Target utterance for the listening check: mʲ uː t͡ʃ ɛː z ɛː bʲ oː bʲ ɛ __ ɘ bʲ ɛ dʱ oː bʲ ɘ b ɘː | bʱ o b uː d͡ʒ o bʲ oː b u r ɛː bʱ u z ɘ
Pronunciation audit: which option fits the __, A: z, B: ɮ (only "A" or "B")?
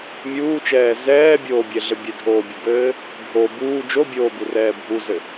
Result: B